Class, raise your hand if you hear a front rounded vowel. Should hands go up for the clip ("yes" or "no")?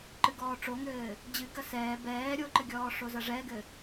no